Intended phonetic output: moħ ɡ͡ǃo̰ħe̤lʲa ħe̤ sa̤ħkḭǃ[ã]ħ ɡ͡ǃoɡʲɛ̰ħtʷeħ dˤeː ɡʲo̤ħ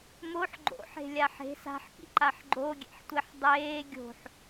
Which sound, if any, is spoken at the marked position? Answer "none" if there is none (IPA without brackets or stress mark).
a